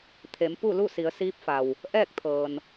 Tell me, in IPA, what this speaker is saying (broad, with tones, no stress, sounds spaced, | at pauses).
t̪ʰ e˩˧ m p u˥˨ l u˥˨ s i˩˧ ə̯ s iː˧˥ p̚ f a˩ w | ʔ ɛː˥˨ k̚ t̪ʰ ɤː˩ n